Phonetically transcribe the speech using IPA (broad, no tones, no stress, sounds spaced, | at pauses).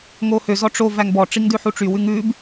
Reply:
ŋ o h ø z ɔ ʈ͡ʂ o v æ ŋ b ɔ ʈ͡ʂ i ŋ d ʉ ħ u ʈ͡ʂ y w ʉ ŋ ʉ b